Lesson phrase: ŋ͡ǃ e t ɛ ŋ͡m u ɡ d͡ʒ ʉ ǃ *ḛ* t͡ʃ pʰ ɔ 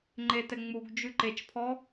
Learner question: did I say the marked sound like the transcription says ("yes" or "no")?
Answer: no